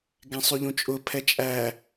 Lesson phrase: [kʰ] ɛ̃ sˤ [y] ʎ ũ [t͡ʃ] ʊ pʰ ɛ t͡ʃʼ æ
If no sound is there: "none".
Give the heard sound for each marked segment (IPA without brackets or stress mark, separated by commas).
ɡ, y, t͡ʃʼ